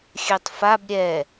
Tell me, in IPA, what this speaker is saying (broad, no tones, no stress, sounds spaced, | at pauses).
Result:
xʲ ø tˤ f a b ɾʲ ɛ